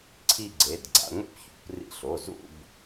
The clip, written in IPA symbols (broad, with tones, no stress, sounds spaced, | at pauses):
ǀʰ i˥˧ ɡ͡ǀ e˩˧˩ d ɡ͡ǀ a̰˧ ŋʷ ḭ˥˧ p ç ṵ˩˧˩ p r ḭ˧ ɬ o˩˧˩ z ṵ˥˧ b